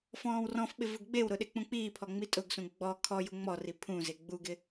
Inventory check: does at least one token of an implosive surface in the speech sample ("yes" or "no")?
yes